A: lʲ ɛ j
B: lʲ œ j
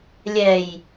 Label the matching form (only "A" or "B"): A